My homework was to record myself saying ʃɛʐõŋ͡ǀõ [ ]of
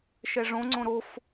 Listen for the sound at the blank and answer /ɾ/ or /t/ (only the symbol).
ɾ